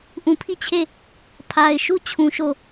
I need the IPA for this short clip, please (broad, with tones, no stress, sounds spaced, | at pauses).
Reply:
ʔ ũ˨ pʰ i˦˨ t͡ɕʰ e˦˨ | pʰ a˨ ɪ̯ ʃ u˦˨ t͡ɕʰ ũ˨ ʃ o˦˨